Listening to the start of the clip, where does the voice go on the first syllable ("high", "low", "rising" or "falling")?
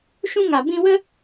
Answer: high